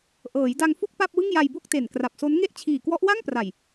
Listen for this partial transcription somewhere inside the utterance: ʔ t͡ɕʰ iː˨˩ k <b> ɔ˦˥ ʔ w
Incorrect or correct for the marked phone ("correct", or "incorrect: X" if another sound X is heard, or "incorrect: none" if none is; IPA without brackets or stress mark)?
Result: incorrect: w